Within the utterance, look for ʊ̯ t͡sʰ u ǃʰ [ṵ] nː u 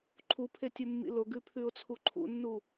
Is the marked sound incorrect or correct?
correct